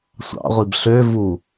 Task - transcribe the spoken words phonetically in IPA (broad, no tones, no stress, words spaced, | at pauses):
sʷɑ̰ʁʷib ɬø vu